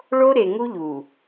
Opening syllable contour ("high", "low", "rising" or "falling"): high